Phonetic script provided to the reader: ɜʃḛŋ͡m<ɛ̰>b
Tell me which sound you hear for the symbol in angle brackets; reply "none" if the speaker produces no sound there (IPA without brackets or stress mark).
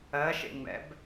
ɛ̰